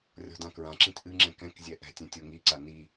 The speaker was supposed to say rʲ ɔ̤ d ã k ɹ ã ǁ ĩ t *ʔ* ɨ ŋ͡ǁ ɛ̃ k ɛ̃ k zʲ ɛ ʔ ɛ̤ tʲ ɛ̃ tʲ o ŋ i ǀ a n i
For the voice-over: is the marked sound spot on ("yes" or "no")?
yes